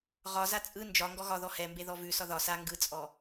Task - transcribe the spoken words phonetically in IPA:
ʁ ɒ z a t͡sʼ ɯ n d͡ʒ ɒ ŋ ɡ ɔ ɣ ɒ ð ɔ h ɛ m b e ð ɔ v ʉ s ɒ ð ɒ s a ŋ ɡ ɯ t͡sʼ ɔ

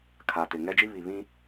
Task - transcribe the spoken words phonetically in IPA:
kʰ a˨ t ɪ˨ ŋ ɛ˦ d͡ʒ i˦ β i˨ β ĩ˦

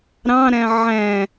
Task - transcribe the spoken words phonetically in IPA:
ɾ ɑ̃ ɾ æ̃ ʕ æ̃

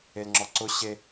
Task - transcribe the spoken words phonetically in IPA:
e l ŋ͡ǁ ɔ ǀ ʊ ɕ e

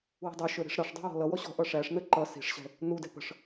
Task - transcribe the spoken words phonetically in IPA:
w ə̤ dˤ ʌ ʃ ə˞ ɾ i̤ ʂ ɾ ɑ ʂ dˤ ɛ̤ w ɔ̤ l ʌ w ɔ ɕ ɔ̤ ʔ ʌ ʂ æ ʂ n ə ǃ ʌ s i̤ ʂ ɕ ɛ̤ | n u d ɛ̤ p ə̤ ʂ

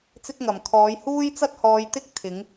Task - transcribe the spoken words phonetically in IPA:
t͡s ɪ˥ k̚ ŋ ɐ˨˩ m kʰ ɔː˨˥ j h uː˥ j t͡s ɐ˥ t̚ h ɔː˨˧ j t̪ ɪ˥ k̚ t̪ʰ ɪ˨˥ ŋ

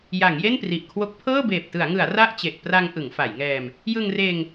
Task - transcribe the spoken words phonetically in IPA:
j a˩˦ ŋ j e˥˩ n p r i˨˩ ʔ kʰ w o˦˥ k̚ pʰ ɤː˥˩ b eː˨˩ p̚ t ɯ˩˦ a̯ ŋ ɯ˩˦ a̯ r a˥˩ ʔ t͡ɕ e˨˩ ʔ p r a˧ ŋ ʔ ɯ˩˦ ŋ f a˩˦ j ŋ ɛː˧ m | j ɯ˧ ŋ r eː˧ ŋ

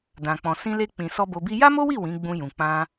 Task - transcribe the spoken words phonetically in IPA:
d ã˨ k͡p ɔ̃˨ s ĩ˧ l e˧ k͡p ĩ˨ s ɔ˧ b o˧ b i˦ j a˦ m o˦ w i˦˨ w ĩ˨˦ ɡ͡b ũ˧ j ũ˨ k͡p ã˧

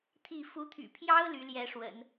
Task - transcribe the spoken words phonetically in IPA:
t̪ʰ i˥˩ f u˧˥ t̪ʰ y̰˨˩ pʰ j ɑ˥ ʊ̯ l y˧˥ l j ɛ˧˥ ʂ w ə̰˨˩˦ n

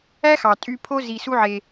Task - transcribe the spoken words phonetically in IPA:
æ˦ x ɑ˨ tʼ y˧ pʰ o˦ z i˧ s u˦ ʕ e˧

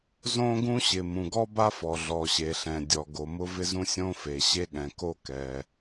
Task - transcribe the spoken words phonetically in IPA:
z õ˥ ɡ ũ˥ ɕ ɪ˩ m ũ˩ ɡ ɔ˥ b a˥ f ɔ˩ ɮ ɔ˩ ɕ e˩ ɬ ɛ̃˩ dʲ ɔ˩ ɡ o˩ m ʊ˥ v ɪ˥ z ũ˥ sʲ õ˥ f e˩ ɕ e˥ ɠ ɛ̃˩ k o˥ k ɛ˩

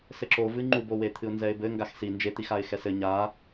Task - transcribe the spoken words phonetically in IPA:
s ɘ ǁ o v ɨ ŋ͡ǃ u b o w e t̪ʰ ɨ ʊ̯ n z ɛ ɪ̯ b ɘ ŋ ɡ a x s i n d͡ʒ e t̪ i x a ɪ̯ x ɛ s ɘ ɲ a

